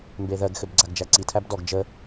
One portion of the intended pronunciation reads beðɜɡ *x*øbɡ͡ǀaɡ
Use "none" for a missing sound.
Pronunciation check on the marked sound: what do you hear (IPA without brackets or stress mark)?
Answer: x